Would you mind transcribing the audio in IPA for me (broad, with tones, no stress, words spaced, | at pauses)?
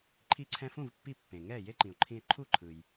ǃʰi˧ǀʰɛ̃˧fũ˥˩vpːi˧ pːẽ˩ŋɛ˥˩ je˥ǃĩ˩o̯ǃʰĩ˧e̯ ǃʰu˥˩ǃʰɯ˩j